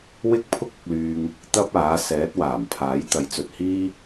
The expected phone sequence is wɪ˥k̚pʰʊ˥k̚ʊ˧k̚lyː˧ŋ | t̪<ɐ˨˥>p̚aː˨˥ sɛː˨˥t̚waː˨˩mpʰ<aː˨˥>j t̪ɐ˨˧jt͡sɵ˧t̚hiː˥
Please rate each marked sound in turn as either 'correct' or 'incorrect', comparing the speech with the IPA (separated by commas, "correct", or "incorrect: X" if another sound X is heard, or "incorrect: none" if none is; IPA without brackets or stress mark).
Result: incorrect: ɐ˥, correct